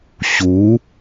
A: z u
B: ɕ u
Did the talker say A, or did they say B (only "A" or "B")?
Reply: B